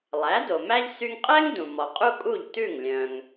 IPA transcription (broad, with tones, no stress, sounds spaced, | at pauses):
lˠ æ˩˥ d o˩ m æ˥ ʎ s y˧ ŋ qʼ ɛ˥ ŋ d ũ˩ m ɔ˩ qʼ u˥ kʼ u˥˩ ʎ t ʉ˥˩ ŋ lʲ œ̃˩ ŋ